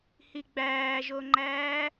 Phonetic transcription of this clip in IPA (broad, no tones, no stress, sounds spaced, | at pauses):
h i ɡ͡b æː ʒ o ŋ͡ǃ æː